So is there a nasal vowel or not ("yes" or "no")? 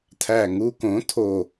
yes